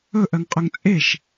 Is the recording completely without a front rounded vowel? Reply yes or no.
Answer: no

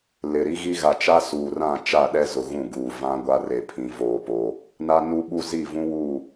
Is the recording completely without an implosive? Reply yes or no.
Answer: no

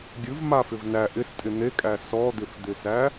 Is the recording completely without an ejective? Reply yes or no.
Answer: no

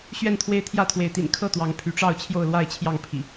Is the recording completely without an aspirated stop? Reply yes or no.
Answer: no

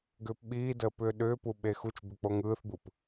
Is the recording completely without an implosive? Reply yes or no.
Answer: no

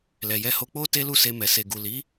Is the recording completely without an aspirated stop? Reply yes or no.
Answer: yes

